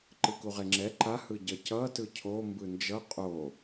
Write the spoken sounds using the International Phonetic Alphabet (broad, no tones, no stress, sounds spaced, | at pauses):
ǃ ɯ k u ʁ e ŋ͡ǁ ɛ ǃ a h ɯ ɟ ʌ c ʌ t ɯ cʰ o m b ɯ n d͡ʒ ʌ qʼ o